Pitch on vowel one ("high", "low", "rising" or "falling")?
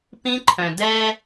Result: high